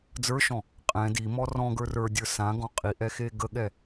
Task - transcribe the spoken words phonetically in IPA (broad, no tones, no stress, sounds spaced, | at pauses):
d͡z ə˞ ʃ ɔ̃ | qʼ ɛ̃ d i m ɔ r ɔ̃ ɡ ə˞ r ə˞ dʲ ə˞ s ã ɡ ɔ̃ qʼ i ʔ ɛ x e ɡ ə ɠ ɛ